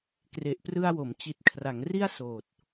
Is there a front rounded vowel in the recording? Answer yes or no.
no